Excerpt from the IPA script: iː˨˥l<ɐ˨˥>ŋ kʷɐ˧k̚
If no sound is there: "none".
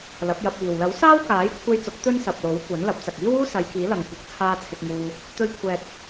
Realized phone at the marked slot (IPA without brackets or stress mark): ɐ˨